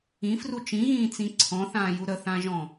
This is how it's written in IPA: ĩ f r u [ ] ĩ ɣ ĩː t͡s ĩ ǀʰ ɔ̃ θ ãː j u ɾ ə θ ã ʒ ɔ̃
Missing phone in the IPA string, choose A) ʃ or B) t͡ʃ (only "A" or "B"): B